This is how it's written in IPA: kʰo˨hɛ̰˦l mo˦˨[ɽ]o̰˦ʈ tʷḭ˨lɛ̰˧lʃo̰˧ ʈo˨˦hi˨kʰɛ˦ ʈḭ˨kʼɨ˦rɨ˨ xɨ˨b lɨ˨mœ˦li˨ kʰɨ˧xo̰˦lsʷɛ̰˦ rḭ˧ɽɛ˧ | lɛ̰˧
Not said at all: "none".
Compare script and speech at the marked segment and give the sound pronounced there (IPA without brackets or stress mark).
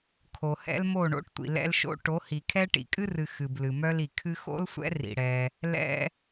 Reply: ɳ